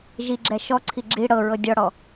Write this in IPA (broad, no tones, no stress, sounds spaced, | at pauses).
ʒ i ɡ͡ǁ ɛ ʃ ɔ ǀʰ i ɡ͡ǁ i ɽ ɤ ɹ ɤ dʲ ɔ ɽ ɔ